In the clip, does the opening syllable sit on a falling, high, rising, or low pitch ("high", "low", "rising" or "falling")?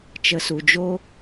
low